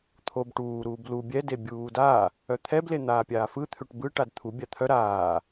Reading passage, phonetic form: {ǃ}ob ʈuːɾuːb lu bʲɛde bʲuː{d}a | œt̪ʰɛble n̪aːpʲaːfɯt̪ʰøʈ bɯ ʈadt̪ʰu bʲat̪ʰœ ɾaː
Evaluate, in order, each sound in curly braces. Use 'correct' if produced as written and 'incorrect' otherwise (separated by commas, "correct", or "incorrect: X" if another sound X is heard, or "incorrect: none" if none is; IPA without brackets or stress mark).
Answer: incorrect: t̪ʰ, correct